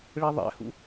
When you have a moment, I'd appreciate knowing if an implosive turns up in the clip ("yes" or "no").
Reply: no